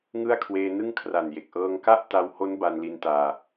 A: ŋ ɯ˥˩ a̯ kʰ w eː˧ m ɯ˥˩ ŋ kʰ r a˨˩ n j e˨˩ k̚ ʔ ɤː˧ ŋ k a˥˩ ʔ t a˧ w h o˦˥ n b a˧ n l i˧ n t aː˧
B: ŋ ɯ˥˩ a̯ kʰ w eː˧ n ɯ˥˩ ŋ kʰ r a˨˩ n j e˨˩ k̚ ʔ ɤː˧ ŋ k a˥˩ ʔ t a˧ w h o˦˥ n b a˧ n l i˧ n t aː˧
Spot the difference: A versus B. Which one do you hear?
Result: B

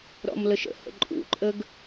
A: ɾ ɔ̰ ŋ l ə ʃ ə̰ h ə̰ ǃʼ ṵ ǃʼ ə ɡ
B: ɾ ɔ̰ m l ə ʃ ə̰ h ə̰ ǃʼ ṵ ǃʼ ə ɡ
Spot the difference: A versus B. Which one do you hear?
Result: B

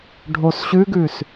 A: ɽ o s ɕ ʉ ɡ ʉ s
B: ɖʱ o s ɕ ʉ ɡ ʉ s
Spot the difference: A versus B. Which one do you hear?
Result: B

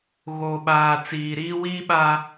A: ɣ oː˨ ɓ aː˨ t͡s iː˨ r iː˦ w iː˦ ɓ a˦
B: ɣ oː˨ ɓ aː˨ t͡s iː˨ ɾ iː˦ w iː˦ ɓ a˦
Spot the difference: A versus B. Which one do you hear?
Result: B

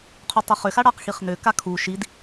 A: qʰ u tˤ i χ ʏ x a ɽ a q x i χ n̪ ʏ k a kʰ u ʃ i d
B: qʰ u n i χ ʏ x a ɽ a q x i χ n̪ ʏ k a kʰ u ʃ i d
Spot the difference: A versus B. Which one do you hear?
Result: A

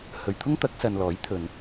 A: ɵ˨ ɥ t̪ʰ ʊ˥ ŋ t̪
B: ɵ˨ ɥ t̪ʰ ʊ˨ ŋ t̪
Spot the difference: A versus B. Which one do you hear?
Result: A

